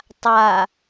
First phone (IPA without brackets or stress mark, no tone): tˤ